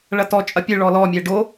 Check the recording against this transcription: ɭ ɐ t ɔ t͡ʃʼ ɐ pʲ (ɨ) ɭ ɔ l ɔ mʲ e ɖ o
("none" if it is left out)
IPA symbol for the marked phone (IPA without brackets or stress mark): ɨ